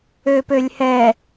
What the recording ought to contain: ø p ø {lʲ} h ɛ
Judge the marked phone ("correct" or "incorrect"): correct